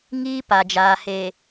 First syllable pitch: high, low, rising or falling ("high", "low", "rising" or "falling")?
high